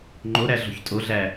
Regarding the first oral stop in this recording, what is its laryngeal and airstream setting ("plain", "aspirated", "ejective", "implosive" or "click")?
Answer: click